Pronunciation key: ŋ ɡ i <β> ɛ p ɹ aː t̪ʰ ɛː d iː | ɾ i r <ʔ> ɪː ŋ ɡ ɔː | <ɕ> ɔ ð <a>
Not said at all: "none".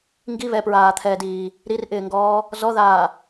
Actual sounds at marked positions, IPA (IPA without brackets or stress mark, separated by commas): β, ʔ, z, aː